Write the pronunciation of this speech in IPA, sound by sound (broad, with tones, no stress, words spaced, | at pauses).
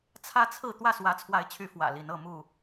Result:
t͡sʰä˦t͡sʰɹ̩˥˨ t̪wä˥˨swä˨˦t͡sʰwa˨˦ɪ̯t͡ɕʰy˨˦ fwä̰˨˩li˨˦n ɤ˥˨mu˥˨